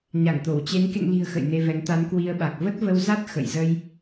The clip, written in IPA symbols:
ɲa˧˩ŋt̪o˧˩wt͡ɕe˨˦n kḛ˧˨ŋli̤˨˩ə̯ xə̰˧˨jne˧vɛ˨˦ŋ t̪a˨˦nkwi˧ə̯ɓa˨˩k̚ və˦˥t̚və˧wza˦˥t̚ xə̰˧˨jzə˧j

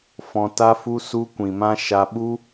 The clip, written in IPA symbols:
fɔ̃˧ta˦fu˦ su˧kʷĩ˨mã˧ ʃa˧ɓu˦

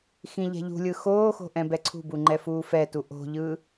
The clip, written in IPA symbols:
xĩʎɛ̤ʎṳlʲɯ xoːxo̤ ʔɛ̃bɛǀʰṳbu ŋ͡ǃɛfuːfɛtu ʔo̤ʎɯ

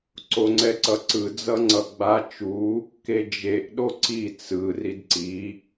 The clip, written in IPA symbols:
ǀoŋ͡ǀɛǀʌǀɯ d͡zʌŋ͡ǀʌɡ͡ba t͡ʃu | ked͡ʒeʔ ɗoǀi t͡sɯ ridǀi

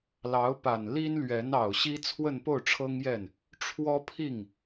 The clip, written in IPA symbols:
lɑ˧˥ʊ̯pa˨˩nli˥nlɥɛ˧˥n ɑ˨˩ʊ̯ɕi˥ t͡sʰwə˥˧npo˥˩ʊ̯ʈ͡ʂʰɤ˥ŋjɛ˥˩n | ʈ͡ʂʰwɔ˥ pʰi˥˩ŋ

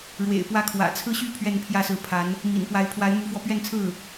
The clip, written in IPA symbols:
ɻwḛ˨˩ɪ̯pwä˥˩kʰwä̰˨˩ t͡sʰɹ̩˥˧ɕy˥˧ pʰɥɛ˥˧npʰjä˥˩sɹ̩˧˥pʰa˧˥n | mḭ˨˩n pwa˧˥ɪ̯pʰwa˧˥ɪ̯ mu˧˥fwɔ˧ pɥɛ˥˧nt͡sʰɹ̩˥˩

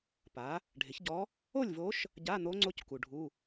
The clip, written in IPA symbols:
pa˩˥ | ɖʱɪ˩˥çɟɔ˧˥ | o˥˨lʲvo˧˥ʃ | ɟa˧˥˧n̪o˧˥ŋ͡ǀo˧˥c ku˨ɖʱu˧˥˧

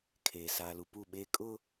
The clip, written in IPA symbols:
kʰeː˨ saː˨lu˨pu˦˨ɓeː˦ kʼʊ˦

